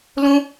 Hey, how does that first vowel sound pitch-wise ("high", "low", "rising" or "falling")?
high